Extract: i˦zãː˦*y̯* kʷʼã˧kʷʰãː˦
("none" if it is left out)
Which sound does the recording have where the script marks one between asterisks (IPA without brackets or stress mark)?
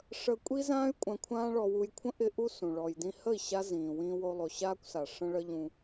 y̯